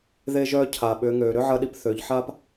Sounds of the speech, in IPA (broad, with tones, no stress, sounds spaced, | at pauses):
ð e˧ ʒ œː˧ cʰ a˩ ɓ ʏː˩˧ ŋ øː˩ ɾ ʏ˥ ʕ ɐ˧ ɗ i˧ p θ ø˩˧ ʎ ħ a˥ p